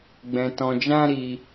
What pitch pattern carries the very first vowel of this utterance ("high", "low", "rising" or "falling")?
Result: low